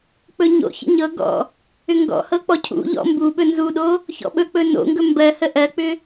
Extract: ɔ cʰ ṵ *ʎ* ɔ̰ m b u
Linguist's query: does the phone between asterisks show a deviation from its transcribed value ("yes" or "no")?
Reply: no